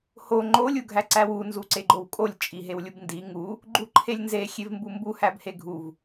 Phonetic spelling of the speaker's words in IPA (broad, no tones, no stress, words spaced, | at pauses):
ho ŋ͡ǃolʲ uɡʱæǀæwu nzuǀeɡ͡ǃowkʼolʲ t͡ʃʼiɦewlʲubndi ŋu | ɡ͡ǃuǃʰelʲnze xʲevmbumbu hæbheɡʱuv